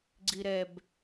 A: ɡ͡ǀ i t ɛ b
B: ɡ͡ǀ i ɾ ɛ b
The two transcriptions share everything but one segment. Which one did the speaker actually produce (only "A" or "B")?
B